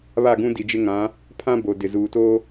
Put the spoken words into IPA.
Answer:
β a˦˨ ɡ ũ˦ d i˨ d͡ʒ ɪ˦ ŋ ã˨˦ | pʰ ã˦ b o˨ d ɪ˨ z uː˨ t oː˦

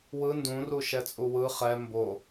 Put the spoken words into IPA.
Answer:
w ɯ n d ũ r u ʃ ɛ t͡sʼ u w ɯ χ ɛ m b o

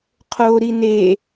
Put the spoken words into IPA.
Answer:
qʰ o ɾ i n e

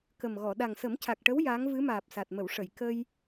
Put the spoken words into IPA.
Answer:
k ə˨˩ m ɣ ɔ˨˩˨ ɗ a˨˩ ŋ s ə˨˩˦ m c a˨˩ k̚ ʈ ə˧˥ w j aː˧˥ ŋ v ɨ˧˥ m aː˨˩ p̚ s a˨˩ t̚ m ə˨˩˨ w ʂ ə˨˩˨ j k ə˧ j

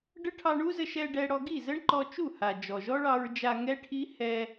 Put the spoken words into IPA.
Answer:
ɖ ə˦ ʈʰ ɑ˧ ɳ u˦ z ə˧ ʃ ɛ˧ ɖ ɛ˧ ɽ ɔ˧ ɡ i˦˨ z ə˦ ɳ ǃ ɔ˧ t͡ʃ u˦˨ h a˨ d͡ʒ ɔ˨ ʒ ɔ˦ ɭ ɑ˧ ɹ d͡ʒ a˧ ŋ ɛ˦ ʈʰ i˦ h ɛ˧

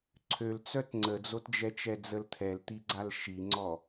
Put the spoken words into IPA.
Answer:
ǀʰ ø l t͡s œ t ŋ͡ǀ ə d͡z o t d͡ʒ ɛ t͡ʃ ɛ d͡z ə l t̪ʰ ɛ l t̪ i ɡ͡ǀ a l ʃ i ŋ͡ǀ ɔ

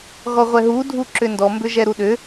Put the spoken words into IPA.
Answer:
ɣ ɔ ʁʷ ɛ ɦ u dʱ u ǁ ʏ n d ɔ m b ʏ ʒ ɛ ɾ u ɗ ʏ

